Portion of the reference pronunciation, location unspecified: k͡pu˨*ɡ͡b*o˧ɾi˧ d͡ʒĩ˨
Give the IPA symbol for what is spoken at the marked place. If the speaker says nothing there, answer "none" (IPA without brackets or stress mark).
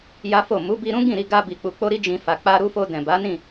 k͡p